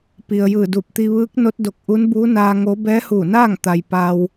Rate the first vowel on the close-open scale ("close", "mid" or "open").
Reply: close